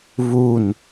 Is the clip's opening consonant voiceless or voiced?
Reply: voiced